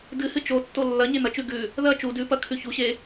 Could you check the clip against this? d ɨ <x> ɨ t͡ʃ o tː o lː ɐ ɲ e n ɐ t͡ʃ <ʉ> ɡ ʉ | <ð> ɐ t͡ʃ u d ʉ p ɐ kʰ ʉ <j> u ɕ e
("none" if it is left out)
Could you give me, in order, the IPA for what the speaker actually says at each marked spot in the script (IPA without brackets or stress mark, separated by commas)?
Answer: h, ʉ, ð, ç